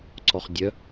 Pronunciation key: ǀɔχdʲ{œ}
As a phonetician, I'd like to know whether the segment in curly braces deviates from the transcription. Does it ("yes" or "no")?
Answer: no